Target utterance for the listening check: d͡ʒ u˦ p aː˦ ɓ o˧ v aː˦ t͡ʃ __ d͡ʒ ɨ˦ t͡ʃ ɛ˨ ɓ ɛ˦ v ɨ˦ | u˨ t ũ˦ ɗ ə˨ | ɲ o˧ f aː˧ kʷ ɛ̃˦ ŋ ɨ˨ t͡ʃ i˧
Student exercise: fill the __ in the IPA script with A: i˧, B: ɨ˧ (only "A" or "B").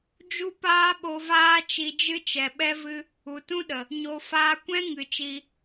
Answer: A